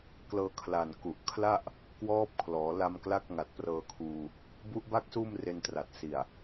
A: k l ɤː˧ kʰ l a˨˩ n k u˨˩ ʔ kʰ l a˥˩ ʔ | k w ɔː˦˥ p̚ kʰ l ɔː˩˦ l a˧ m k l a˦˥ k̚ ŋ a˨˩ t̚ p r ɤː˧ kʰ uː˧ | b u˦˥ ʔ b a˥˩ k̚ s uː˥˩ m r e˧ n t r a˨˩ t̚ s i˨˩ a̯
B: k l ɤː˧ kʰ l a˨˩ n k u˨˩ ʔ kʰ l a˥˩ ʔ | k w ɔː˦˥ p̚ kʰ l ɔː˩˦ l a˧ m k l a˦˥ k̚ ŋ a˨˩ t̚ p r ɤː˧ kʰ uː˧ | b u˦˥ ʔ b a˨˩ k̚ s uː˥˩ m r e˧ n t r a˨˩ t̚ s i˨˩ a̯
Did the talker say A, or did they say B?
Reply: A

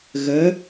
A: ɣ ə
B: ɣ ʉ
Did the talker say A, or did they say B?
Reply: A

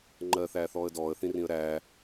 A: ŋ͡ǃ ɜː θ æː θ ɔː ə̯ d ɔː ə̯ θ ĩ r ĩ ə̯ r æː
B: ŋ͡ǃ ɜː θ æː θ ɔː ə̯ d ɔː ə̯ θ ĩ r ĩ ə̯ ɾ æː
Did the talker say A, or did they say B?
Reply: B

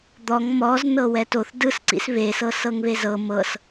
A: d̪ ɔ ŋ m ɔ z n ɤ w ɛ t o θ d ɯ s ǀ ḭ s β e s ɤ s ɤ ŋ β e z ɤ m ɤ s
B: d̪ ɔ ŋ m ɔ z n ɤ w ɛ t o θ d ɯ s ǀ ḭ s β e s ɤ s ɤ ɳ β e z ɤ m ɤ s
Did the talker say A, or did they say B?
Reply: A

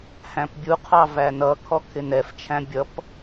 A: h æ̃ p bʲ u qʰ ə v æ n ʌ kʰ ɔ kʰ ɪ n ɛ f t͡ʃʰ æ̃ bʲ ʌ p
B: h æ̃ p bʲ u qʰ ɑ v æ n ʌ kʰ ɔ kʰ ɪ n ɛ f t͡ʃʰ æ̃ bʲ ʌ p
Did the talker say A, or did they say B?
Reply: B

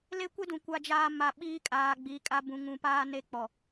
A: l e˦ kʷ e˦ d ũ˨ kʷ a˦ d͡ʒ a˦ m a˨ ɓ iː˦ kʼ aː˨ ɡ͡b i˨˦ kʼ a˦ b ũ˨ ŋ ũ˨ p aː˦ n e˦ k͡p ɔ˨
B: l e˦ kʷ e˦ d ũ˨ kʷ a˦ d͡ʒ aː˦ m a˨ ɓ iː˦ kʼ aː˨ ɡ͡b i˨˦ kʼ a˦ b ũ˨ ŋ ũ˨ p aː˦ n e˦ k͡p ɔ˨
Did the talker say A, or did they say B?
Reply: B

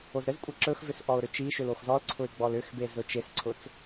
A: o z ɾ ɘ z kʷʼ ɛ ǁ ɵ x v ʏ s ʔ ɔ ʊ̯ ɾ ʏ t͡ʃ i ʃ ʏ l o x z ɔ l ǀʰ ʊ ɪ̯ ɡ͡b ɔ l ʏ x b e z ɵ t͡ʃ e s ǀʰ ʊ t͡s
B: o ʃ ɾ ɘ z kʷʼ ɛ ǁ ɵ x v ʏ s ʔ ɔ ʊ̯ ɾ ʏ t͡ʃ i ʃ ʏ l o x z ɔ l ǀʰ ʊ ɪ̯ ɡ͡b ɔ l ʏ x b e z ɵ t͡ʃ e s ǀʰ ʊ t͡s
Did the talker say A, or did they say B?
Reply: A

